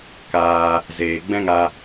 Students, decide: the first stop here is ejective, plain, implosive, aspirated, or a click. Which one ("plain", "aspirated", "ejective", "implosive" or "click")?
plain